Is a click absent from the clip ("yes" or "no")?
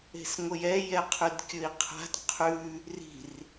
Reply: yes